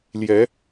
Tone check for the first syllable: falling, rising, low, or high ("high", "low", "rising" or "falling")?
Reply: rising